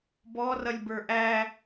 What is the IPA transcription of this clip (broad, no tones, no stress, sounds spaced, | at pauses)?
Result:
b ɔ r ʌ lʲ b ə˞ ʔ æ